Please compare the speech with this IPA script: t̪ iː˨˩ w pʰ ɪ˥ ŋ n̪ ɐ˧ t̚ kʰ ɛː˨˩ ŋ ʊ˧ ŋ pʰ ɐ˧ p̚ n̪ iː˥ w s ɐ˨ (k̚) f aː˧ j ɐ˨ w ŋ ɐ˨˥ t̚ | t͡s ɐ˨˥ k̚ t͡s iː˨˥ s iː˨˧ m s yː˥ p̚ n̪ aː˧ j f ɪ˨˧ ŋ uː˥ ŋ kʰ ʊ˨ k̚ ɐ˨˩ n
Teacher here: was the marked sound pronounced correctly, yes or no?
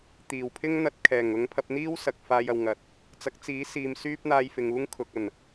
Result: yes